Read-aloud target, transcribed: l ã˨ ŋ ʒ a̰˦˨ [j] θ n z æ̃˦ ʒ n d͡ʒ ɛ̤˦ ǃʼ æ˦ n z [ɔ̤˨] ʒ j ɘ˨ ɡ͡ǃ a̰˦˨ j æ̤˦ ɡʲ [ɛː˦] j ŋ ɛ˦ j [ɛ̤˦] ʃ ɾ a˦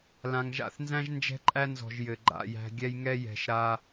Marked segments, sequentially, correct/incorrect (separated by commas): incorrect, correct, incorrect, incorrect